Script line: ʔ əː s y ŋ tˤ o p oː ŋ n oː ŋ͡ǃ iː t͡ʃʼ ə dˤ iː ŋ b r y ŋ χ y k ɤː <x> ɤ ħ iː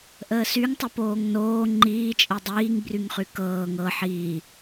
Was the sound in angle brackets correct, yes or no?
no